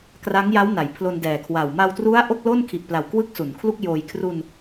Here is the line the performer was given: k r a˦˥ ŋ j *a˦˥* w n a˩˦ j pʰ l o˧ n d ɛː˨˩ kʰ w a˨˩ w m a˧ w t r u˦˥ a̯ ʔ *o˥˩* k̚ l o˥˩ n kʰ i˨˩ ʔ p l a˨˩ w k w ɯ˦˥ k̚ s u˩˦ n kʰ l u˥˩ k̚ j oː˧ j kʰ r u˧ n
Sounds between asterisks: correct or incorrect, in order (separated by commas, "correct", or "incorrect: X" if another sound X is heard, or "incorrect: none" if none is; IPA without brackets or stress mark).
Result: correct, correct